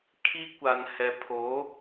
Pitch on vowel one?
high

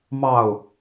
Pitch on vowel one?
falling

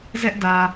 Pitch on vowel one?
high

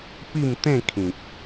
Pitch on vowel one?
falling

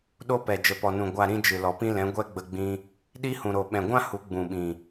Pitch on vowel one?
high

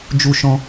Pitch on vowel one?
high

